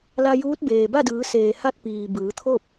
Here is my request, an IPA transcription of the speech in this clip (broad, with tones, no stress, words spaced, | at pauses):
la˧juː˧˥t̚beː˩ ba˥˨dɯː˩˧ seː˩ha˥˨t̚piː˩ bɯː˩˧t̪ʰo˥˨p̚